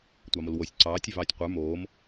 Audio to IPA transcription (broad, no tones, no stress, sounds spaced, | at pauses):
tʷ ɑ m o l w o sʲ ǀ ɑː tʲ ɵ v ɑː tʲ qʷ ə˞ m oː m